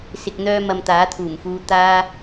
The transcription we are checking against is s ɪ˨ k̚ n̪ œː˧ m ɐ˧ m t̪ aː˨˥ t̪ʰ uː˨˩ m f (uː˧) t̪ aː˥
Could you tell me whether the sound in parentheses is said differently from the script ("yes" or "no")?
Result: no